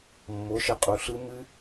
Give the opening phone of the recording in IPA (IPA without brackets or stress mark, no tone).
mː